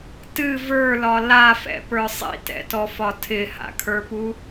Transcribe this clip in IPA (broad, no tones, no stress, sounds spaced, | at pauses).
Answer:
t ɨ v ə˞ l ɒ l a f ɛ̰ p ə˞ sˤ ḭ t ɛ̰ t ɔ f ɒ tʰ ɪ h a̰ kʰ ə˞ p u